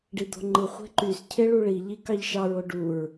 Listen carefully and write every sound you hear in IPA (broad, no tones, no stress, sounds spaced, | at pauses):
ɖ i d̪ o̤ ŋ͡ǃ ɯ χʷ e̤ ǃ y s cʰ e ɭ u ɭ i ʎ i k ɑ ʎ ʃ ɑ ɹ o ɖ u ɹ